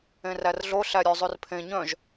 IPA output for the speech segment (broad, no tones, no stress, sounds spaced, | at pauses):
ẽ r æ r ɮ o ɬ æ ɾʲ ø zˤ ʉ r pʰ ẽ ɲ œ̃ ʒ